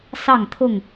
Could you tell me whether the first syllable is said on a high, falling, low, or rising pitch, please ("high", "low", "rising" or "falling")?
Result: falling